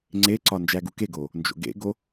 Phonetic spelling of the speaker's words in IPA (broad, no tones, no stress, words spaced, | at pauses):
ŋ͡ǀeǀɒ nd͡ʒæɡukeɡoː | nd͡ʒo̰ɡḛɡo